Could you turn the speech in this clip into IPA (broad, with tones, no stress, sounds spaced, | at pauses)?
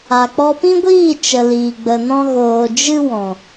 a˨ k͡p ɔ˧ p ĩ˦ ɡʷ iː˦˨ t͡ʃ ə˨ l iː˨ ɡ͡b ə˨ n ɔ̃˧ ɣ oː˨ d͡ʒ ɨ˦ w ɔ̃˨